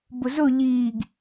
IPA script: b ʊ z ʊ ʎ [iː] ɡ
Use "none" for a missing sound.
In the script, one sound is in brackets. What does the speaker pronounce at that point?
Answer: iː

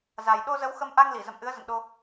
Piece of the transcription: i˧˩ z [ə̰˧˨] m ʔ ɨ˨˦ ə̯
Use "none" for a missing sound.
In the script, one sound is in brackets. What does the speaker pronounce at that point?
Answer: ə̰˧˨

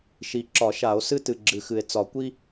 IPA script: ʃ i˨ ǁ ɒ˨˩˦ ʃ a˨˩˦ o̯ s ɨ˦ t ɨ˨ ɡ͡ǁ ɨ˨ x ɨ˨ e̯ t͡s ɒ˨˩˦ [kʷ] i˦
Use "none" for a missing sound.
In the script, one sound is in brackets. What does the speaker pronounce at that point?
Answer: kʷ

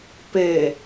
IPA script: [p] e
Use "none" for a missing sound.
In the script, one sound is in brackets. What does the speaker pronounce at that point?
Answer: p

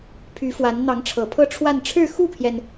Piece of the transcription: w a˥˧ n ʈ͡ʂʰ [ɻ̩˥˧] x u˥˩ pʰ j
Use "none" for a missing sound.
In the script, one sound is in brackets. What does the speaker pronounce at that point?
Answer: ɻ̩˥˧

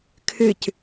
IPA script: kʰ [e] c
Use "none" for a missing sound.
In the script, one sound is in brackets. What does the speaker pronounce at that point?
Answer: ɨ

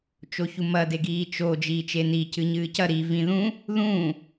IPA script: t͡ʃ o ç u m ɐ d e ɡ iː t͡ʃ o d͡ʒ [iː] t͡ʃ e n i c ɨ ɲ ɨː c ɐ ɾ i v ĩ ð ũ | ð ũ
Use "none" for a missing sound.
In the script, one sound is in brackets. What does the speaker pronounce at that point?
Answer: iː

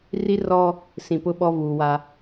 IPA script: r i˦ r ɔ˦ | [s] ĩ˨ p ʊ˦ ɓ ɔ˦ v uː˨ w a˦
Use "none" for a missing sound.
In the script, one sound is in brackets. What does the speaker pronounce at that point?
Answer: s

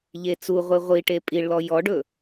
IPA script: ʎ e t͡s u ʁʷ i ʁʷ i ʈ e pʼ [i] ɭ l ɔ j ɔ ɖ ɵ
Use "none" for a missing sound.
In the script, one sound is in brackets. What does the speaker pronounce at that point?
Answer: i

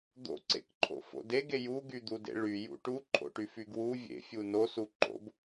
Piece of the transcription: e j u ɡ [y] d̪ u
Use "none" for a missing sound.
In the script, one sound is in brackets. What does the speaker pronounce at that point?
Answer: y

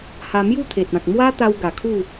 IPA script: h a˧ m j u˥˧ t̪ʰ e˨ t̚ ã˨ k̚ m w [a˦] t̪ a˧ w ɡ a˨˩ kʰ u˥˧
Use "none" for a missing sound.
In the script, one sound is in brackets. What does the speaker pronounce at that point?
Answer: a˦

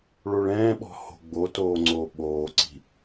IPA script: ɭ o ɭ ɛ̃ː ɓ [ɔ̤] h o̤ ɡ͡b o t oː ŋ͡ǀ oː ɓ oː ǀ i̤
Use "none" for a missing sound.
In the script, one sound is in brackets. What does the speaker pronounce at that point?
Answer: ɔ̤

